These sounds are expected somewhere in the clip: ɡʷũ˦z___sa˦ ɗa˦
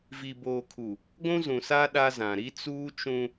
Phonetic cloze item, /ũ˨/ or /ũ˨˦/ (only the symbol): ũ˨